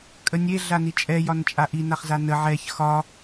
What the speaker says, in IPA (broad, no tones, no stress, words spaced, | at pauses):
kʼənʲe ɮanit͡ʃʼɛ jɒnt͡ʃʼaʔi naχzanə ʕɛç xɒ